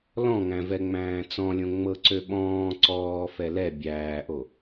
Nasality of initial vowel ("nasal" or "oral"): nasal